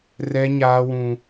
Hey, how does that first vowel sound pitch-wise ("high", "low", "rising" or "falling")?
high